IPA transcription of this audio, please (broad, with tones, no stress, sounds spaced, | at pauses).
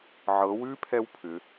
ʕ ɤ˩˧ w ʉ˦˥ pʰ ɛ˦˥ w pʰ ʏ˩˧